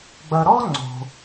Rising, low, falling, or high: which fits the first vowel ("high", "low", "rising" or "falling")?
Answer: low